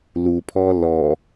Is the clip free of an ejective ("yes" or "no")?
yes